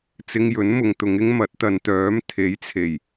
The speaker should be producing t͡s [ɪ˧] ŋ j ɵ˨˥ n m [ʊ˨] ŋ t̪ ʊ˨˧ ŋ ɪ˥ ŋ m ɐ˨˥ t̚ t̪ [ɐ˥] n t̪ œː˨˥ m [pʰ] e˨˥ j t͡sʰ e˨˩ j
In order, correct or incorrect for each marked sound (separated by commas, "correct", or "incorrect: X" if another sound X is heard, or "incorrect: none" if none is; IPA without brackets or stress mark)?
correct, correct, incorrect: ɐ˨˧, incorrect: t̪ʰ